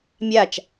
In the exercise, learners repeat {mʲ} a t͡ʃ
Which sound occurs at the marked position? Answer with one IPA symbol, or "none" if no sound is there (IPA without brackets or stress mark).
mʲ